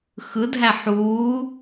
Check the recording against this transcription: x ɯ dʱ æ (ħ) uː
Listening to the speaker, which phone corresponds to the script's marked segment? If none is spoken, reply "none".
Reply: ħ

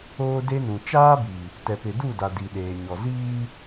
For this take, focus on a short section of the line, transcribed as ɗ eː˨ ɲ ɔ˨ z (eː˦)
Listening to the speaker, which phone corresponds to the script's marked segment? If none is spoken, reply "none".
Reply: iː˦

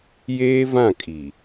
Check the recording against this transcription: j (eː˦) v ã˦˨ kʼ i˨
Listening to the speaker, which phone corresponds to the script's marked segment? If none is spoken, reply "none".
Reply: eː˦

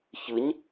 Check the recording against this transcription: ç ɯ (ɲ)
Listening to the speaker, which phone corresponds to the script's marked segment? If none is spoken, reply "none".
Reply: ɲ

